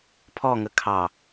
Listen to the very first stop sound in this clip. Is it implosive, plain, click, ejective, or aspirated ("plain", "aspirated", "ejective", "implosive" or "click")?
aspirated